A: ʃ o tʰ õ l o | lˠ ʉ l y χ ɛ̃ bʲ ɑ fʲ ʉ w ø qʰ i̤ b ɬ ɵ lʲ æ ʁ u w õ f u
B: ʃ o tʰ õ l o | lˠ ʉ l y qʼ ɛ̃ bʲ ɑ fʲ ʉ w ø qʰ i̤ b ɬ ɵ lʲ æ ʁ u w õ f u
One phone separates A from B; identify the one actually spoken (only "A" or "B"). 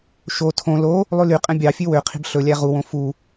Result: B